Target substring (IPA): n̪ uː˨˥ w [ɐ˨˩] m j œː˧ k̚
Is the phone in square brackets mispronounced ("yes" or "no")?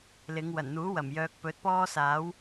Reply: no